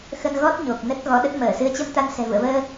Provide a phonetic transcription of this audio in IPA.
x ə˧ n ɣ ɔ˦˥ t̚ ɲ o˨˩ k̚ n ə˦˥ t̚ ɣ ɔ˨˦ ɗ ə˦˥ t̚ m əː˧˩ s ɨ˨˦ ə̯ t͡ɕ ə˧ m t̪ a˧ n s ɛ̤˨˩ v ṵ˧˨ ə̯ v əː˧

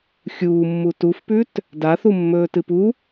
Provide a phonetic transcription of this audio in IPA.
xʲ uː mː u t u f p ʉ t | d a θ u mː ɵː t ɨ p u

